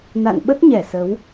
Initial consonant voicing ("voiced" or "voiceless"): voiced